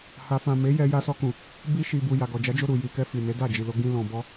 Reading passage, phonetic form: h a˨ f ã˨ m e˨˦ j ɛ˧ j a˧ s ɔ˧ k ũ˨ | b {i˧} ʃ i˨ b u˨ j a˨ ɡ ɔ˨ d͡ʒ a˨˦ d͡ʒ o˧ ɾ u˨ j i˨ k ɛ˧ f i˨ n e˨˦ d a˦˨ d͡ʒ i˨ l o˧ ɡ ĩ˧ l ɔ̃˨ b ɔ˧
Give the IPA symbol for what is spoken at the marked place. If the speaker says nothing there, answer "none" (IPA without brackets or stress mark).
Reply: i˧